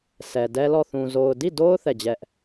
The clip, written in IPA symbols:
s ɛ˨ d ɛ˦ l ɔ˦˨ θ ũ˨ z o˨ ʊ̯ d i˦˨ d o˦ ʊ̯ θ ɛ˦˨ d͡ʑ ɛ˦ ʔ

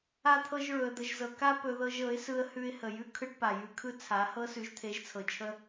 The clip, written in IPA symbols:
a˦ t̪ʰ ɤ˦ ʒ ɹ ɵ˧ ə̯ d̪ ə˧ ʒ z ɤ˧ k a˦ p ɵ˧ ð ɤ˧ ʒ ɤ˨˦ ɪ̯ s ɯ˧ ə̯ h ʉ˧ ɪ̯ h ə˨ j ʉ˦ kʰ ɯ˦ ʈ p a˨ j ʉ˧ kʰ ɯ˦ t͡sʰ a˨˦ h ɤ˧ s ʉ˨˦ ʒ t̪ʰ e˨˦ ʒ t͡sʰ ɤ˨ t͡ʃʰ ə˦

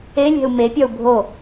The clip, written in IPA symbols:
e lʲ ɛ̤ u̯ m e pʲ ɒ u̯ bʱ o

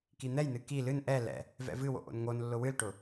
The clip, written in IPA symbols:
k i n̪ ɛ j n ɨ k i l ɨ n ʔ ɛ l ɛ̰ | v ɛ̰ v ɨ w o̰ ʔ o̰ n ŋ o n lː ʊ w ɨ l ʈ ʊ

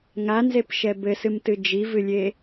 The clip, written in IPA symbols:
ŋ a n z e p ʃ ɛ b ɘ s ɨ m t ɨ d͡ʒ i v ɨ lʲ e

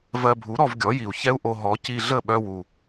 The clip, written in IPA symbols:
v ɜ˧ bʱ u˩˥ ɾ ɔ˧ v ɡʲ ɔ˩˥ j i˩ u̯ ç ɛ˥ u̯ ʔ o˧ ɦ ɔ˩˥ c i˧ ɮ ə˥˩ ɓ œ˧ w u˩

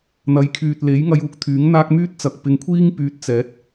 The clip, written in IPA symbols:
n̪ ɐ˨˧ j kʰ yː˨ t̚ l e˨˥ j ŋ ɐ˧ j uː˨ k̚ t̪ʰ yː˨˥ ŋ n̪ aː˥ k̚ m yː˥ t̚ t͡s ɐ˨ k̚ p ɪ˨ ŋ kʷʰ iː˥ ŋ p yː˧ t̚ t͡s ɛː˨˥ t̚

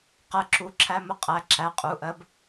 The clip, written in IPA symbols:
q ɜ˨˥ ǁ u˩˧˩ ǁʰ æ˧ m ʊ˧ qʼ æ˩˧˩ ǁ æ˨˥ qʼ u˩˧˩ ʔ ɜ˧˥˧ b

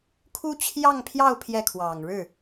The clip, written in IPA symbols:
kʰ u˥ t͡ɕʰ j ɑ˥˧ ŋ pʰ j ɑ˥˧ ʊ̯ pʰ j ɛ˥˩ kʰ w ɑ˨˩ ŋ ɻ ɻ̩˥˩

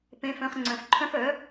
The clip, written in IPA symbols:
p ẽ˨ f œ̃˨ χ ŋ͡ǀ œ̃˨ f ǃʰ œ̃˧ f œ˨˦

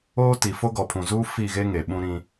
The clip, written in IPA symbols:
oː˦ t i˨ f o˦ ɡ ɔ˨ pʰ ũ˨ z uː˦ f i˦˨ ɣ e˦ ŋ e˨ ɓ ũ˦ ɾ ĩ˦

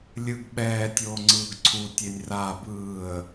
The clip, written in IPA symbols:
lʲ ɯ ɡ ɓ ɛː tʲ oː ŋ͡ǀ ɯː ɡ ǀʰ u tʲ e nʲ r aː b ɯː ə̯

